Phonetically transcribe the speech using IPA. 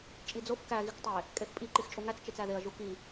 t͡ʃʼid͡zof kæ ɣiktˤe | kʼefpʼi ǃixt͡ʃʼuŋæt͡s t͡ʃet͡sæðeɐ̯ ʒuki

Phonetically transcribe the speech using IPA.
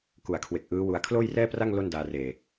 ku˨˩a̯kʰwe˨˩k̚ ʔɯː˦˥wu˧a̯ kʰloː˥˩jrɛː˥˩pra˥˩ŋ lo˥˩ndaː˧reː˨˩

